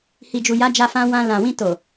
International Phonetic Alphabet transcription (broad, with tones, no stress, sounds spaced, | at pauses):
h i˨ d͡ʒ u˨ j a˨˦ d͡ʒ a˧ f ã˧ w ã˧ l ã˨ w ĩ˧ t o˨